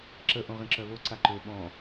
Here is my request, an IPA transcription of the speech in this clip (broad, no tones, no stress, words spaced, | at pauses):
ǁə ʔõʁĩǁœβo ǀaǃø ɓɔ̃